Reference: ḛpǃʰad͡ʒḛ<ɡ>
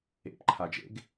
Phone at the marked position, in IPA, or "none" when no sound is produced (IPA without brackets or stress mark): ɡ